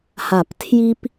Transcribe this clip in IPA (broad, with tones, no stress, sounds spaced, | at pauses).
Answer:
h a˨˩˦ p tʰ j i˦ p